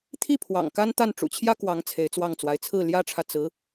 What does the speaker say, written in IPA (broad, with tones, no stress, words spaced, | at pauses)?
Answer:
t̪ʰi˥˩ pʰwɑ̰˨˩ŋ ka˥nt̪a˥˩n ʈ͡ʂṵ˨˩t͡ɕʰjä˥ kwɑ˧˥ŋ t͡sʰe˧˥ɪ̯t͡swɑ˥˩ŋt͡swa˧˥ɪ̯ t͡sʰɹ̩˥˩ljä˥ʈ͡ʂʰä˨ t͡sɹ̩˧˥